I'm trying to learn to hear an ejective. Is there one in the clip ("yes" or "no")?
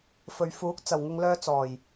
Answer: no